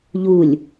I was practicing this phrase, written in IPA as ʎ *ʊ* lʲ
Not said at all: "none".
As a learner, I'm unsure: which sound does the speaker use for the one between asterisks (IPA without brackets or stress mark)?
u